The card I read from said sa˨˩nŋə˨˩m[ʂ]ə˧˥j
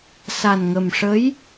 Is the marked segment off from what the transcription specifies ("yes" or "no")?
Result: no